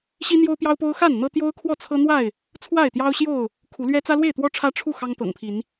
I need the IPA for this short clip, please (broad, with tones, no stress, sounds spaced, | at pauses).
ɕ i˦ n̪ j o˦ ʊ̯ p j ɑ˦ ʊ̯ p o˦ ʊ̯ x a˥˨ n n̪ ɤ˦ t̪ j o˦ ʊ̯ kʰ w ɔ˥˨ t͡sʰ ɤ˦ n̪ w a˥˨ ɪ̯ | t͡sʰ w a˥˨ ɪ̯ t̪ j ɑ˦ ʊ̯ ɕ j o˥˨ ʊ̯ | kʰ u˨˦ l ɥ ɛ˦ t͡s ä˦ l w e˥˨ ɪ̯ t̪ w ɔ˦ ʈ͡ʂʰ ä˦ ʈ͡ʂʰ u˥˨ x ɑ˦ ŋ t̪ ɤ̰˨˩ ŋ pʰ i˨˦ n